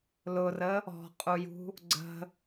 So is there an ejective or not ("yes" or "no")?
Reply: yes